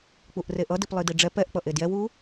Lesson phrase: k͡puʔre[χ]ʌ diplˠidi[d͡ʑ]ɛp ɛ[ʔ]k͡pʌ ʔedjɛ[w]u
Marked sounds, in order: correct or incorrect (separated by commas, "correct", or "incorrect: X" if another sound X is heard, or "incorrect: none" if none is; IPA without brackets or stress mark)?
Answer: incorrect: ʔ, incorrect: ɖ͡ʐ, correct, correct